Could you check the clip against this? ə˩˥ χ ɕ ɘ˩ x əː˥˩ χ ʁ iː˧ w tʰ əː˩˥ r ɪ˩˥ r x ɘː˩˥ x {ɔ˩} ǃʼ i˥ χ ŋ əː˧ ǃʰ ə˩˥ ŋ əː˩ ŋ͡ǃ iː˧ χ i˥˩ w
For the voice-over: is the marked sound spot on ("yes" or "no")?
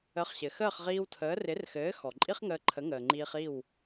yes